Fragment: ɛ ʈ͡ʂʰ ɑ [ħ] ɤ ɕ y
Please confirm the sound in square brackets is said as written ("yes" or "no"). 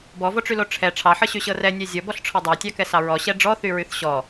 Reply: yes